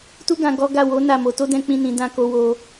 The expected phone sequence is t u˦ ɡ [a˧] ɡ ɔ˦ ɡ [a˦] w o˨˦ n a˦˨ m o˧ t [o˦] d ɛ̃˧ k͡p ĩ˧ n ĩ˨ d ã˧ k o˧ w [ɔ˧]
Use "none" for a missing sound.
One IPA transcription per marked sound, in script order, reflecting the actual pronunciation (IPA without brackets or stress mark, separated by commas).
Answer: ã˧, a˦˨, o˦, o˧